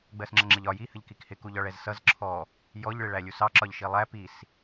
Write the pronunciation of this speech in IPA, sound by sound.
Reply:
ɡ͡b ɜ s ŋ͡ǁ ʌ ŋ͡ǁ ɪ ʎ ɒ j i h ə ʎ k i k h ɪ k u ʎ ɒ ɭ ɛ z s ʌ z ǁʰ ɔ | j ɔ ʎ ɭ ɪ ɭ æ lʲ u s ɑ ǁ ɒ ʎ ʃ i lˠ æ p i s

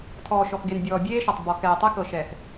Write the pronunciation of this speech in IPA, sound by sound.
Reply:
tʰ ɔː˨ ʃ ɔ˨ x ɡ e˨ n bʲ ɔː˨ bʲ eː˦ ʃ ɔ˨ tˤ b ɔ˨ k ɛː˨ tˤ ɛ˦ k ɤ˨ ʃ ɛː˨ x

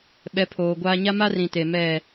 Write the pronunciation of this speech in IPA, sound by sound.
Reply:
ɓ ɛ˨˦ pʰ oː˨ ɡʷ aː˦ ɲ a˦ m a˦ r ĩ˨ t e˨ m ɛ˦˨

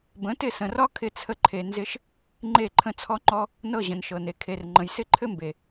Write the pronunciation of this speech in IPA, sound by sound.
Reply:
b ə̃˨˦ t ɪ˦˨ s ə̃˨ r ɒ˦ kʰ ɪ˦ t͡sʰ ə˦ ǃʰ e˧ n z ɪ˦ ʃ | ŋ͡ǃ e˦˨ ǃʰ ə̃˦˨ t͡sʰ ɔ˦ ŋ͡ǃ ɔ˦ | n ɤ˦˨ ʑ ə̃˨ n ʃ ɤ˨ n e˨ kʰ e˨ r ŋ͡ǃ ə̃˨ j s ɪ˦ ǃʰ ɘ˦ m b e˨

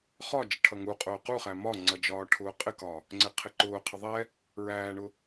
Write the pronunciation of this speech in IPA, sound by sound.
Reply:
χ ɒ d͡ʒ ɪ ʈʰ ʌ ŋ u qʼ ʊː q u χ æ m ɒ ŋ͡ǀ ʌ d͡ʒ ɒː ʈʰ ʊː qʼ ɪ k ɒ | ŋ͡ǀ ɪ qʰ ɪ ǃ ʊː qʰ ɪ ðˤ ɛ | ɹ æː ɳ ʊ

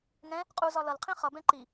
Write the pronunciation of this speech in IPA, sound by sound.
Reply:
ŋ ɛ̃ | qʼ u z ɒ l ʌ l qʰ ĩ χ ʌ b ɛ̃ ǃ i

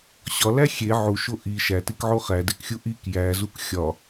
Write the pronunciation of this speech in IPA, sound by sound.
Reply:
ɕ ɒ l æ xʲ e ʕ u ʃ o ʔ i ʃ æ t i k ʕ o χ æ d e k xʲ u ʔ i k j æ z u k xʲ ɒ

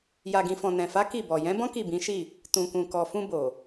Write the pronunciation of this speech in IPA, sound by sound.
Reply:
j a˨ ɡ ĩ˨ f ɔ̃˨ n ɛ̃˨ f a˨˦ k i˦˨ b ɔ˨ j ɛ̃˨˦ b ɔ̃˦ k i˦˨ b ĩ˨˦ ʃ i˦˨ | t ũ˨ k ũ˨ k ɔ˨ f ũ˧ b o˨

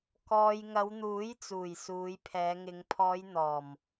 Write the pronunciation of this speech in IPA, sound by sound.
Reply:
k ɔː˧ j ŋ ɐ˨˧ w n̪ uː˨˥ j t͡s uː˨˩ j s uː˨˧ j pʰ ɛː˨˧ ŋ ɪ˨˧ ŋ pʰ ɔː˨˧ j n̪ ɔː˨˩ m

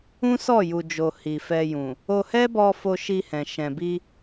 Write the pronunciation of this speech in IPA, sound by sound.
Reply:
ũ˦ s ɔ˦˨ j u˨ d͡ʒ o˨ h i˨ f ɛ˧ j ũ˨ | o˧ h ɛ˦ b ɔ˧ f o˧ ʃ i˧ h ɛ̃˨ ʃ ɛ̃˨ b i˧

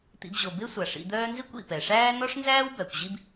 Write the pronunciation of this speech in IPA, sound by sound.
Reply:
t̪ ḭ˨ b ʑ o˩ b e˥ sʷ a˩ ʂ ḭ˨ d̪ œː˦ n z i˥ kʷ ḭ˩ p ɛ˩ ʂ æː˥ n ɔ˥ ʂ n z æː˥ w b æ˩ kʷ ʑ i˦ b

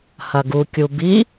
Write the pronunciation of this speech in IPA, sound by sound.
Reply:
h ɐ ɡ u kʲ u b i

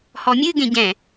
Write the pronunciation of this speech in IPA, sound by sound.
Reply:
h ɔ mʲ ɨ ɡ ẽ ɟ ɛ̃

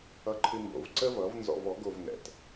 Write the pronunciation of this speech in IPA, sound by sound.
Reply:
ʌ˥ ǃʰ ɨ˥ m b o̰˧ v ǀ ə˥ v ʌ˩˥ v n z ɔ̰˧ v ɔ˩˥ ɡ o˧ v n ɛ̰˩ t

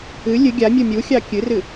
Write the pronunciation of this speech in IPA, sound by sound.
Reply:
ɨ lʲ ɨ ɡʲ a mʲ u mʲ u xʲ ɑ kʲ ɨ r ɨ

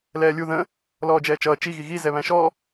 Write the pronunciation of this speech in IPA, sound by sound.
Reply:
l ɛː lʲ u ð ə̃ | l ɔː d͡ʒ ɛː t͡ʃ ʌː t͡ʃ i ɣ i ɣ i z ɛ β æ̃ ʃ ɔ

